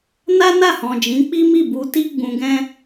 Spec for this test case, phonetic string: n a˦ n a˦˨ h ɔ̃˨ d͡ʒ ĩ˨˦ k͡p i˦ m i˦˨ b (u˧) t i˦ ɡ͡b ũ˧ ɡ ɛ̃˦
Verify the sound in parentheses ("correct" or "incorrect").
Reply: correct